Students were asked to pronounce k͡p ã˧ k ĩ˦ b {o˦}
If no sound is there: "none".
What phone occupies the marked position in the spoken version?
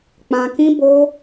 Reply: o˦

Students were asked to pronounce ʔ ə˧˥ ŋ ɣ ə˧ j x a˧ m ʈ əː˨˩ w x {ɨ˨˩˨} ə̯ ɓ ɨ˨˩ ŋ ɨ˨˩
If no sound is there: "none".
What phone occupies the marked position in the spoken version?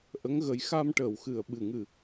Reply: ɨ˨˩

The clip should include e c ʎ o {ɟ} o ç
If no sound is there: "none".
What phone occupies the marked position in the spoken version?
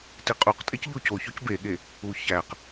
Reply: c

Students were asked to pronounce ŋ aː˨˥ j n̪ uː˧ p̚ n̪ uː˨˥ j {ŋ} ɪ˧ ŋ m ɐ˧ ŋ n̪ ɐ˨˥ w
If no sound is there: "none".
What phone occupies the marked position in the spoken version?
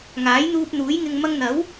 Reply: ŋ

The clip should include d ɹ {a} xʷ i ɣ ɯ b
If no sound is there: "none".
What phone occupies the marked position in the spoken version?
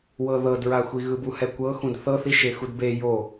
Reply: a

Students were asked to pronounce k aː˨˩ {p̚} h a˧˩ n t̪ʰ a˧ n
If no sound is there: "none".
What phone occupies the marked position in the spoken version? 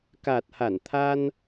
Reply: t̚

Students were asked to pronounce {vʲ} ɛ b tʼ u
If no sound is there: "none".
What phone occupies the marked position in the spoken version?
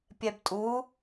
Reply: pʲ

